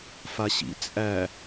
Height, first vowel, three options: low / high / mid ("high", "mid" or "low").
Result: low